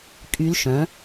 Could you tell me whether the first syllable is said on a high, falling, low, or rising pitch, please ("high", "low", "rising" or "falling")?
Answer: rising